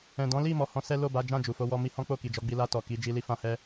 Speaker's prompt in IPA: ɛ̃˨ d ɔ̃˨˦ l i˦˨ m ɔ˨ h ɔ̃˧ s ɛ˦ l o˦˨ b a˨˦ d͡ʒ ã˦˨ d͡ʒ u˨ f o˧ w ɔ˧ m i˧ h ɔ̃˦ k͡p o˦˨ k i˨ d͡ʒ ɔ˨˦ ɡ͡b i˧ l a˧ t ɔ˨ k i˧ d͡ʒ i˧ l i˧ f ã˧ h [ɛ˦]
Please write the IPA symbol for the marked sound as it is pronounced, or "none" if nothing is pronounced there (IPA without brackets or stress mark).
ɛ˦